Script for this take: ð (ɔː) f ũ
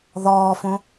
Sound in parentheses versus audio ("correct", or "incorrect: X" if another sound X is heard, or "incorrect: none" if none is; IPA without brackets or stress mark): correct